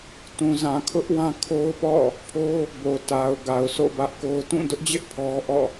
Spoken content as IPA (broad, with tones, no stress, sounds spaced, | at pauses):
t ũ˨ z ã˨ kʰ ʊ˦ ʔ w ã˦ kʰ o˦ ʊ̯ p ɔ̰˦˨ | pʰ o˦ | b o˨ t a˨ ʊ̯ ɡ a˨ ʊ̯ sʰ o̰˦˨ b ä˦ ʔ k o˦ ʊ̯ t ũ˦˨ d ʊ˦ ʔ d͡ʑ ɪ˦ ʔ pʰ ɔ˦ ʔ ɔ̰˦˨